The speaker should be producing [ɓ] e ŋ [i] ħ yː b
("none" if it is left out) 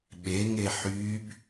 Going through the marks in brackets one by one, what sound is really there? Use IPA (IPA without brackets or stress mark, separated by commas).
ɓ, e